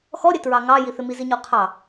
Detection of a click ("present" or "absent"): absent